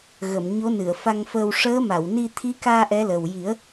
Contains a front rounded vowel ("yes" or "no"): no